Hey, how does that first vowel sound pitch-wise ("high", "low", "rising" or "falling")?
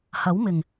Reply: rising